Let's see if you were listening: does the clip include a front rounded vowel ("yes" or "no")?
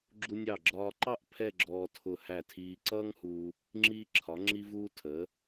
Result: no